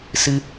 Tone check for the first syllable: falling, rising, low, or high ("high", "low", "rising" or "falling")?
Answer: high